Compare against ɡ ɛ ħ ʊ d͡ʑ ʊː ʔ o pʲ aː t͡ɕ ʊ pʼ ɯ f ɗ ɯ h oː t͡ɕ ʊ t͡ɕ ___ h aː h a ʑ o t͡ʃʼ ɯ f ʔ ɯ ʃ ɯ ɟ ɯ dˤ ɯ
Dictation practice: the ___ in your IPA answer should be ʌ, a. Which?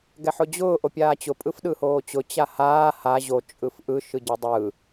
a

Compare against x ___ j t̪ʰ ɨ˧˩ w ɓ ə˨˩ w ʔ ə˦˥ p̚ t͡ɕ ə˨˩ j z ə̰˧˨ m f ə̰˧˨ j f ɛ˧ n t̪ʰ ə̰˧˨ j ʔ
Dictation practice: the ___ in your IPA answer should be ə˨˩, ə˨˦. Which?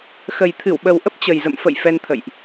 ə˨˩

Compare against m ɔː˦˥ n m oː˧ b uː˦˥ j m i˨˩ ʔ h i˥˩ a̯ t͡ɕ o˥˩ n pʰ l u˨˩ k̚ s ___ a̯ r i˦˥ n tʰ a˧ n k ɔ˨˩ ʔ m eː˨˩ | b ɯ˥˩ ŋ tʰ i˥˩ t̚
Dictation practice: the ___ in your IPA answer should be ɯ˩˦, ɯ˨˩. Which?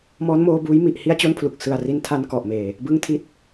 ɯ˨˩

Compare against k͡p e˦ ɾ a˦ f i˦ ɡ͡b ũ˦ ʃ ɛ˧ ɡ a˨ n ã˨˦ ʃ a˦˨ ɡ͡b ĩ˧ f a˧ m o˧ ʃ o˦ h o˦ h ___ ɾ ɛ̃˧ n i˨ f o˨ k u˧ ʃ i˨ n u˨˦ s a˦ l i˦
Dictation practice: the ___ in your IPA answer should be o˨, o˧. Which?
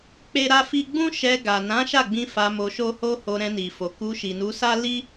o˧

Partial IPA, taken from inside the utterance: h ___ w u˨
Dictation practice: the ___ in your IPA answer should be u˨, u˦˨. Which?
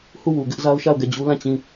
u˦˨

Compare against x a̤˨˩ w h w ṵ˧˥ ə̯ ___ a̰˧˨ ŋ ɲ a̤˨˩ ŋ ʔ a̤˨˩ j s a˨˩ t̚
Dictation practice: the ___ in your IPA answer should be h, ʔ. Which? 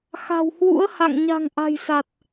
h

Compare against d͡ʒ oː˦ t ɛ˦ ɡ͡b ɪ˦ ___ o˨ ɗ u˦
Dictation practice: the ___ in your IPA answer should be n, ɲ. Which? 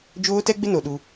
n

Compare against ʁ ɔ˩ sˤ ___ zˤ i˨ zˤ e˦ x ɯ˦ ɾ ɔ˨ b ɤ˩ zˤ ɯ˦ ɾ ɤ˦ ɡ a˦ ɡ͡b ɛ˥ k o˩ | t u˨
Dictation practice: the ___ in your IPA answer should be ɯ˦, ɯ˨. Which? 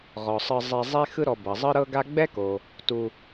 ɯ˨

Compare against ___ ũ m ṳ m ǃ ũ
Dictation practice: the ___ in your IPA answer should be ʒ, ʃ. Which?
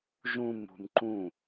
ʒ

